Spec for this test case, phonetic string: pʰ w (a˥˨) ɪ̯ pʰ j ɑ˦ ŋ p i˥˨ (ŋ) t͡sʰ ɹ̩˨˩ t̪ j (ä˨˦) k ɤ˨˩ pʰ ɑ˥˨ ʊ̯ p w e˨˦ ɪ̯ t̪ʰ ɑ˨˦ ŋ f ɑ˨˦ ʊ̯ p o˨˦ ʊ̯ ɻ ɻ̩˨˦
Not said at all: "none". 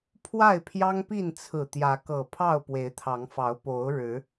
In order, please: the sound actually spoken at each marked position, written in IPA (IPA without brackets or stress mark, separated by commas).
a˥˨, n, ä˨˦